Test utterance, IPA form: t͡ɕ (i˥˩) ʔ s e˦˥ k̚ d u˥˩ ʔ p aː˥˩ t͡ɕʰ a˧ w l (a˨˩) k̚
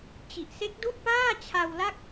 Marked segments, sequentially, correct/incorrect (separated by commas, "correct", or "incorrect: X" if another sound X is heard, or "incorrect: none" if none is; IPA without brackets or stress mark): incorrect: i˨˩, incorrect: a˥˩